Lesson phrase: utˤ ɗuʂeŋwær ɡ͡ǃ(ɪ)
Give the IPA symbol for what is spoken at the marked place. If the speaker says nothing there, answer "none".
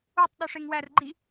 i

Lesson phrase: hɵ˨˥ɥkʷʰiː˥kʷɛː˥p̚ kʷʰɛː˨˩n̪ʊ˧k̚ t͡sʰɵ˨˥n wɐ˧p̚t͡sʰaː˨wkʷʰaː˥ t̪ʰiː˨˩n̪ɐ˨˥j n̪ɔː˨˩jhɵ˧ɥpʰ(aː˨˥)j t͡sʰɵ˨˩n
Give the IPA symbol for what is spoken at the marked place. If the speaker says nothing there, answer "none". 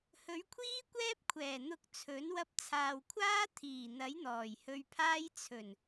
aː˥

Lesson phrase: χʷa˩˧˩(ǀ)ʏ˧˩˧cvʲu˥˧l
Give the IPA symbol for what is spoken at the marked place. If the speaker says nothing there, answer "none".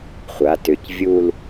t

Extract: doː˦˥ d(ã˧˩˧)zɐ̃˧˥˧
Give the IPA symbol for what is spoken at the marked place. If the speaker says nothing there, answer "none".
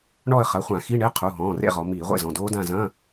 ã˦˨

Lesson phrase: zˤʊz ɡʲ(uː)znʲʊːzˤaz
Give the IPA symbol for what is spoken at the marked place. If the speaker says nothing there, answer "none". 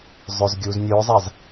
uː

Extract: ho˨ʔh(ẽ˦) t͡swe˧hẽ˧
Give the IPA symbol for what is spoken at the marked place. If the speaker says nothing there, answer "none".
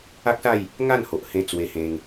ẽ˧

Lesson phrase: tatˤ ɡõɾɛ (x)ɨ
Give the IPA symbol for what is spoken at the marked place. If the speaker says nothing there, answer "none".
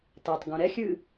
xʲ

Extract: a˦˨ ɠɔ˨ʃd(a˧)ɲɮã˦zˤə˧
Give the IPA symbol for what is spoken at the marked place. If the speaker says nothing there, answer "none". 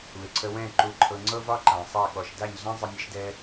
a˦˨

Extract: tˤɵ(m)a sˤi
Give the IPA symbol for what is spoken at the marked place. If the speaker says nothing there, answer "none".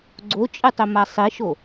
m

